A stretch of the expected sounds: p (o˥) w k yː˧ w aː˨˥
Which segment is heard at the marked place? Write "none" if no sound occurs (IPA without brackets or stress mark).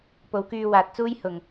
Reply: o˨˥